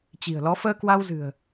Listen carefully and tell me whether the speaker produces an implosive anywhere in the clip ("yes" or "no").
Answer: no